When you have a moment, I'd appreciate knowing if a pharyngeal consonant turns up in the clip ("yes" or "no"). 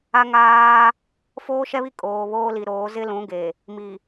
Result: no